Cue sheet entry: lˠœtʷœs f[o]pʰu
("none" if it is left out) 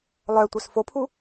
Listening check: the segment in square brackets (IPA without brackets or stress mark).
o